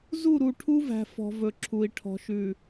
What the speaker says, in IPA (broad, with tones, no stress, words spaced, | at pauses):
zu˦˨ɾu˨ʈʰu˦væ̤˨ fɔ̤˨ vɵ˨ǁʰu˨i̯ ʈʰɔ̤˨ʃʉ˨